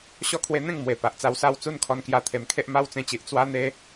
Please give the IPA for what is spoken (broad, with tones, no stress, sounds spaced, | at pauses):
ɕ ɔ˥˧ kʰ w e˧ n̪ ẽ˥˧ ŋ m w e˨˩ p a˨ ʔ t͡s a˧ w s a˥˧ w t͡s u˥˧ n kʰ ɔ˧ n k j a˧ t̪ʰ e˨˩ m kʰ e˦ ʔ m a˦ w t͡s ẽ˧ t͡ɕ i˨ ʔ t͡s w a˦ n̪ e˦